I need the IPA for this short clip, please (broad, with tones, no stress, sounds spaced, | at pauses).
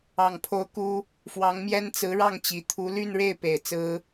ɑ˨˩ ŋ pʰ o˧˥ ʊ̯ k u˥ | f w ɑ˧˥ ŋ m j ɛ˥ n t͡s ɹ̩˧˥ ɻ ɑ˥˩ ŋ t͡ɕ i˨˩ t̪ʰ u˧˥ l y˥˧ n ɻ e˥˩ ɪ̯ p e˨˩ ɪ̯ t͡s ɹ̩˥